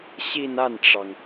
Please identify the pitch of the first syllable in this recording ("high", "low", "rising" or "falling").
falling